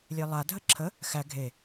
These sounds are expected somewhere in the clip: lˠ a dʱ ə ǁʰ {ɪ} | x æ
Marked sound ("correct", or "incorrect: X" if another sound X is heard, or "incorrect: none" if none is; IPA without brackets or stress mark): incorrect: ə